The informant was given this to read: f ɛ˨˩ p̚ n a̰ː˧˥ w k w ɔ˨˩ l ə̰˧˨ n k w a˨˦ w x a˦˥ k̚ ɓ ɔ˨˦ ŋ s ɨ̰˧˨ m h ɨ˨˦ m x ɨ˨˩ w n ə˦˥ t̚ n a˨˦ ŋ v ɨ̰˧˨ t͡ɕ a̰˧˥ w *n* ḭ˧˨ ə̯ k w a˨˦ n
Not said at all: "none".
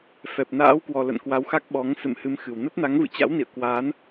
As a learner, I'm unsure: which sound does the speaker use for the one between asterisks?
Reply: n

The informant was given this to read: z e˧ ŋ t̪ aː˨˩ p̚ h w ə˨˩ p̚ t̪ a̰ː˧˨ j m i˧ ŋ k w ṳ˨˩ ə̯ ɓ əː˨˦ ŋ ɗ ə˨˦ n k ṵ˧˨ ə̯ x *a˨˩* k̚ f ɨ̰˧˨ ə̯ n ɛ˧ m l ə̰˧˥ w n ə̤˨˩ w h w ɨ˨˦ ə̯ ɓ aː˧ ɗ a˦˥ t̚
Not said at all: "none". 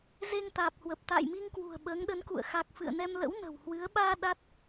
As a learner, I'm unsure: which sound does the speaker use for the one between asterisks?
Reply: a˨˩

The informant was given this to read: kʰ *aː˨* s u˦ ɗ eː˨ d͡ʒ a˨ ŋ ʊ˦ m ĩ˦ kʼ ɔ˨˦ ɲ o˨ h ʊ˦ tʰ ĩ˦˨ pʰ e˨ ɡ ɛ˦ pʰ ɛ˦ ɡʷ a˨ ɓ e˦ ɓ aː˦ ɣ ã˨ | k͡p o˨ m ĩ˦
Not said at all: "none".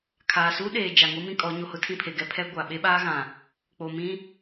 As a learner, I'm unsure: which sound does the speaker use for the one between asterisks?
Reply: aː˨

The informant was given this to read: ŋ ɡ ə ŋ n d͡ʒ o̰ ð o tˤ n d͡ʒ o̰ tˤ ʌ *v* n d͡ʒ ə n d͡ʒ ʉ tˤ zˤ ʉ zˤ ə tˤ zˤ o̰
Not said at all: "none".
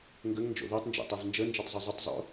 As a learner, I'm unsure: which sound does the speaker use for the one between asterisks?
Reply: v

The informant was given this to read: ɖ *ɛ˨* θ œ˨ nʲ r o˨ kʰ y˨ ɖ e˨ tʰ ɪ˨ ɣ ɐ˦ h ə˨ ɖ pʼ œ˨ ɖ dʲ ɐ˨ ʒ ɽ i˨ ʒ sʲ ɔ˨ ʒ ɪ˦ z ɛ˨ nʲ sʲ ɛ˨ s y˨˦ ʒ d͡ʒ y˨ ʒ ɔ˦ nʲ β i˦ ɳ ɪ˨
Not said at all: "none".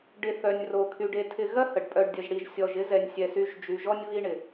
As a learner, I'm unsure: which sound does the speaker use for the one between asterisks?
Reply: ɪ˨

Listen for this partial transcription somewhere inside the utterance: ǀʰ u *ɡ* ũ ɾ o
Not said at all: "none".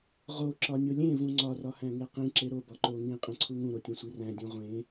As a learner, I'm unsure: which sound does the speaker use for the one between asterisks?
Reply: ŋ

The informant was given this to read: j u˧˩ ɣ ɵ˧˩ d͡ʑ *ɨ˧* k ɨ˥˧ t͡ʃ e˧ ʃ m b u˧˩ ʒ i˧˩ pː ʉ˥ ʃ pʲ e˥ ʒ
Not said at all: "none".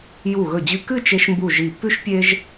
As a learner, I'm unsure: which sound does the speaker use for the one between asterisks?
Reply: ʉ˧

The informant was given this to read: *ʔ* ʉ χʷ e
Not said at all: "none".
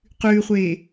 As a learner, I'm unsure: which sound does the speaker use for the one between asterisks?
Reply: q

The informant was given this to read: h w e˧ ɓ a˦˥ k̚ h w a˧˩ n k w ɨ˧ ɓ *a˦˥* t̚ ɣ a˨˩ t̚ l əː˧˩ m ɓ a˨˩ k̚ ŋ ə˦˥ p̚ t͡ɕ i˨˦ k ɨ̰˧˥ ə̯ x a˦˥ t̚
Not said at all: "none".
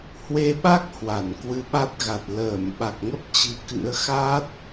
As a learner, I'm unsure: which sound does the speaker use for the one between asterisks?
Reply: a˦˥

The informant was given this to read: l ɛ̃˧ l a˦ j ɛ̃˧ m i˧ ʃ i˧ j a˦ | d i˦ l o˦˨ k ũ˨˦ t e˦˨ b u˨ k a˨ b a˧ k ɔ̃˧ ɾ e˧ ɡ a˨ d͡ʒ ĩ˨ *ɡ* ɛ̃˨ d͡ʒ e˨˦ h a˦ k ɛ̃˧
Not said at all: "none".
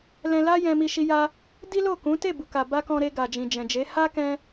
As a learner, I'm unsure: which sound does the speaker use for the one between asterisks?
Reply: d͡ʒ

